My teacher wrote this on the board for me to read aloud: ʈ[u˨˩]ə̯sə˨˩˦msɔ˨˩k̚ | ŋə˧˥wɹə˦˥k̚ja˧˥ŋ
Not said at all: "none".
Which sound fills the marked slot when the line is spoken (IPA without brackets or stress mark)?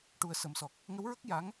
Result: u˨˩